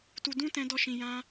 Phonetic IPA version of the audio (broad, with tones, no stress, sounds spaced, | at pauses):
t u˧ d ũ˦ t ɛ̃˧ d ɔ˧ ʃ ĩ˨ j ã˧